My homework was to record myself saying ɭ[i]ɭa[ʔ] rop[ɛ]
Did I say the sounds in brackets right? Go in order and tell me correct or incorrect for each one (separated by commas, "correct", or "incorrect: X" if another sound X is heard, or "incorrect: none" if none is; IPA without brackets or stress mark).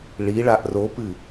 correct, correct, incorrect: ɨ